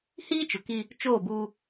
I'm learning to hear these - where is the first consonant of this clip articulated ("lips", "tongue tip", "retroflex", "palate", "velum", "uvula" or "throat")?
throat